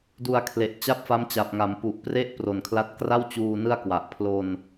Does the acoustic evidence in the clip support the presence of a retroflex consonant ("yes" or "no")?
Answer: no